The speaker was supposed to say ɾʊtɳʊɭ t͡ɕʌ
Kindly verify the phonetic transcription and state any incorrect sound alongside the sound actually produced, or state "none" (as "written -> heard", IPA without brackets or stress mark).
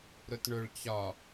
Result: ʌ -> ɒ